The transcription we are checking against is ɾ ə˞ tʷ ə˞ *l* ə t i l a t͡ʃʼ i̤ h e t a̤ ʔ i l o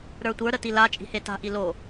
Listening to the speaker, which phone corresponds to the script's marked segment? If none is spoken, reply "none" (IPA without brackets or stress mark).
ɾ